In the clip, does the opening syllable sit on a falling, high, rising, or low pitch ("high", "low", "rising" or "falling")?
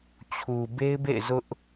low